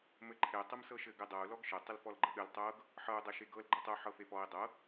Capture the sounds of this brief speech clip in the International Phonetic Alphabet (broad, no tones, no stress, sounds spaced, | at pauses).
m ɘ ǃʰ e tˤ ɘ m s ɤ ʃ ɘ ɡ ɘ dˤ ɤ u̯ l ɔ ɡ ʃ ə tˤ ə l f ɔ l ɡ͡ǃ ə ɠ ɘ l tˤ ɤ ɡ | ħ ɤ u̯ dˤ ɤ ʃ e ɡ ɤ l ɡ͡ǃ ɤ tˤ ə u̯ ħ ɤ f e f ɔ i̯ dˤ ɤ